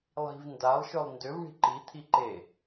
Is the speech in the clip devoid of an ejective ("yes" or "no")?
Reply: yes